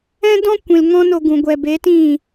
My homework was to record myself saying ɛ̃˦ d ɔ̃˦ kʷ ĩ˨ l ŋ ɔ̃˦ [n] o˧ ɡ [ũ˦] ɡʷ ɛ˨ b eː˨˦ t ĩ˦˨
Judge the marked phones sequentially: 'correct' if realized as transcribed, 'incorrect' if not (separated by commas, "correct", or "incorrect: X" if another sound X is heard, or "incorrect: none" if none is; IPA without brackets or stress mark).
correct, incorrect: ũ˨